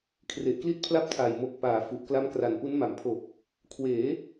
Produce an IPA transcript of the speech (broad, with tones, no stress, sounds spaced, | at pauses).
kʰ r e˨˩ ʔ k l i˥˩ t̚ pʰ l a˥˩ p̚ tʰ aː˨˩ j m o˨˩ k̚ p aː˩˦ f u˨˩ ʔ k l a˦˥ m k r a˨˩ n p u˦˥ n m a˨˩ m pʰ o˨˩ k̚ | kʰ w eː˩˦